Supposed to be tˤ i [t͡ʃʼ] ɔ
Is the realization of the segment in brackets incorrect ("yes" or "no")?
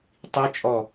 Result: no